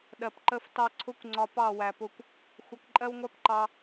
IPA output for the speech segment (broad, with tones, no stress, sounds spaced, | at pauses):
ɗ ɜ˨ p ǃ ə˧ f t ɑ˧ ǀʰ ʊ˦ kʷ ŋ͡ǀ ɒ˧ p ɑ˦˨ w æ˨ p ʊ˧ kʷ | xʷ ʌ˧ k ǃʼ ɜ˦ w ŋʷ æ˦ p ǃ ɑ˧